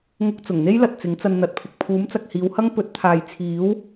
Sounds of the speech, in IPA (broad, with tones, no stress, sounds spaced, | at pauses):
ŋ ʊ˧ k̚ t͡s ʊ˨˩ ŋ n̪ e˥ j l ɐ˨ t̚ t͡s ɪ˨˥ ŋ t͡s ɐ˧ n n̪ ɐ˨˥ t̚ pʰ ɪ˨ k̚ pʰ uː˨˥ m t͡s ɐ˨ k̚ h iː˨˧ w h ɐ˥ ŋ p ɵ˨˥ t̚ t̪ʰ aː˨ j t͡sʰ iː˨˥ w